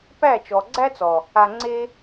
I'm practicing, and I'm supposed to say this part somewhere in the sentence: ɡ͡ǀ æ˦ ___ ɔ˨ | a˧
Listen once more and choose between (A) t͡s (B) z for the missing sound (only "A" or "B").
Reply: A